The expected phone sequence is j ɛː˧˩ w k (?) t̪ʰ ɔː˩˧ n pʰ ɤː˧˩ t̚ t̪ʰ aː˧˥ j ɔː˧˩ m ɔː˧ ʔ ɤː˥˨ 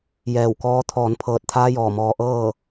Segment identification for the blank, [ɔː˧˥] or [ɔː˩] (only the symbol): ɔː˧˥